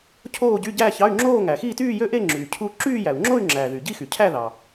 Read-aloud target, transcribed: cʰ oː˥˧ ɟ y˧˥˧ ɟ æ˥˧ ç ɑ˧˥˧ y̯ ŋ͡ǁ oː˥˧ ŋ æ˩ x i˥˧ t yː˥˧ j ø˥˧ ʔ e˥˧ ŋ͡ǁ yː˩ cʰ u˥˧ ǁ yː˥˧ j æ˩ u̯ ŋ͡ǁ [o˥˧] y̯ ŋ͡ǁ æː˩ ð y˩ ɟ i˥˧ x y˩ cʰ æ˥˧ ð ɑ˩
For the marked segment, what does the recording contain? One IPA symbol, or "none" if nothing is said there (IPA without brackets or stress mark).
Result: o˥˧